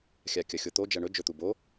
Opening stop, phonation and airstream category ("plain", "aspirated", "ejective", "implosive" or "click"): plain